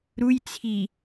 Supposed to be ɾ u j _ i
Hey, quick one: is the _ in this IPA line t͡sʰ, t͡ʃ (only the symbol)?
t͡sʰ